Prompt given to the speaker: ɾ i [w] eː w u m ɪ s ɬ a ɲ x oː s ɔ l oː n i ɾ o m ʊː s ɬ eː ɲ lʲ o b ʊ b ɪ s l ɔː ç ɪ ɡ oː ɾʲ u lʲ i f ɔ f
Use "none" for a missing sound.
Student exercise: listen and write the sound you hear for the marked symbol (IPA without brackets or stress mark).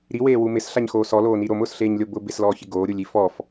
w